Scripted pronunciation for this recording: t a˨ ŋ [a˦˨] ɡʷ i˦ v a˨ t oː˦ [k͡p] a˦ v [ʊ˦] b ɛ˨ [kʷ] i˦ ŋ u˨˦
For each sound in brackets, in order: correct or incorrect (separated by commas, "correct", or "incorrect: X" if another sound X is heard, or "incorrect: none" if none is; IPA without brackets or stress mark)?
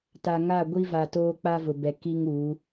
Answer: correct, correct, incorrect: ʊ˨, incorrect: k